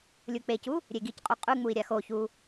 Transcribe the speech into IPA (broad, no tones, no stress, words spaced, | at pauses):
lʲuk͡pecu | ɾʲeɡicqʼu qʼʉŋ͡mui̯ ɾʲaxoçu